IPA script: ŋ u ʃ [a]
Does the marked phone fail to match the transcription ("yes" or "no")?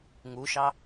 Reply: yes